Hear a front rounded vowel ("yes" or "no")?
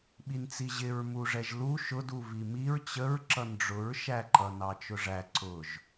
no